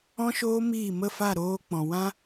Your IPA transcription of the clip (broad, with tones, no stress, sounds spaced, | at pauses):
ɔ̃˦ ʃ oː˦ m iː˦˨ m ə˦˨ f a˦˨ ɾ oː˧ k͡p ɔ̃˨ w ã˦